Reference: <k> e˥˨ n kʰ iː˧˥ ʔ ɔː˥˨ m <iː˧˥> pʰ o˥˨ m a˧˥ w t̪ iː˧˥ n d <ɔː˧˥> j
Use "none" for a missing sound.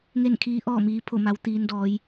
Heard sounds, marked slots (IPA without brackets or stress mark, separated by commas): ŋ, iː˧˥, ɔː˧˥